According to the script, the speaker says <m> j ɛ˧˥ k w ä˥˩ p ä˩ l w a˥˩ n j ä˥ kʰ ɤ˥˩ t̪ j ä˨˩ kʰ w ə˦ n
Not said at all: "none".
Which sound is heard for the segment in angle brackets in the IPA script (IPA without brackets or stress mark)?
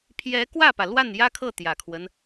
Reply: pʰ